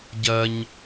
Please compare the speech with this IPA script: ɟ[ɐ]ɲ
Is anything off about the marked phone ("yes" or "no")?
no